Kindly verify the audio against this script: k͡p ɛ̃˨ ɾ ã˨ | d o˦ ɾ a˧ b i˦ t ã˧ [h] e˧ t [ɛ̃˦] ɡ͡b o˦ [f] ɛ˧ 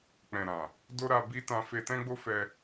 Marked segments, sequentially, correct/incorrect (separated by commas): incorrect, correct, correct